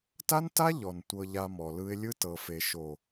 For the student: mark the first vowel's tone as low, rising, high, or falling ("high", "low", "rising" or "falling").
high